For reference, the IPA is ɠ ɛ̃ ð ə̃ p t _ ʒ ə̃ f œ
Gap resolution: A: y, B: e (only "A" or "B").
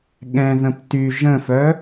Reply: A